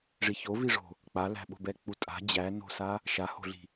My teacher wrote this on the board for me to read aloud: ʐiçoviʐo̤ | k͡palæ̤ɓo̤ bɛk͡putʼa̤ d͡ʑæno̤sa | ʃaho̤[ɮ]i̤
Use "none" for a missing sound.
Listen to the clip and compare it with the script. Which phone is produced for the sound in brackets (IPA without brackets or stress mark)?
ɮ